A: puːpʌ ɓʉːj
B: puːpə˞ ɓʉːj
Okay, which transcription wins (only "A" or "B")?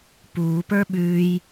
B